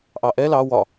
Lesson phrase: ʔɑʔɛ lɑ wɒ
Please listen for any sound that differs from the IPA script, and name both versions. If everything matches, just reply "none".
none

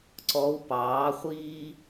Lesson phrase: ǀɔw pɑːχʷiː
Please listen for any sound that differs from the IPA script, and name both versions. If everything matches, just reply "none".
none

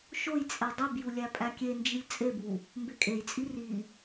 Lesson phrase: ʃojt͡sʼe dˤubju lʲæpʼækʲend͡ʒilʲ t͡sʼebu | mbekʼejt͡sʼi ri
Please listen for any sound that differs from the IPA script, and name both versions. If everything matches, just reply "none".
none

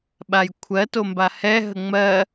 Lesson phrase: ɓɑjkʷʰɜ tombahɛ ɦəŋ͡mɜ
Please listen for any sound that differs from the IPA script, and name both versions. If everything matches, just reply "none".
ɑ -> a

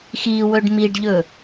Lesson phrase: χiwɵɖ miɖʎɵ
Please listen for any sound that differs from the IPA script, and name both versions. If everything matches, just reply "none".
χ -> x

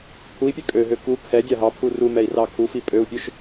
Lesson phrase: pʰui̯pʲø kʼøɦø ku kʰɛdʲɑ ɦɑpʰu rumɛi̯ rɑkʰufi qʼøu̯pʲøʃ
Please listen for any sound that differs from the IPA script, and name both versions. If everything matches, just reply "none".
qʼ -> pʼ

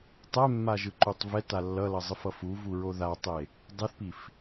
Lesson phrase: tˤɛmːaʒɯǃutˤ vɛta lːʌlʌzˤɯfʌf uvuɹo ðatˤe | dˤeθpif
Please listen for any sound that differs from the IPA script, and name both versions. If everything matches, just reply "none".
none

